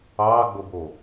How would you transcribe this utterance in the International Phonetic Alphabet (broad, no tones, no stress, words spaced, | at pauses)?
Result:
ɑːɡ͡bobo